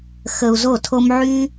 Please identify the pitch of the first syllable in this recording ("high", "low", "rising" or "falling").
low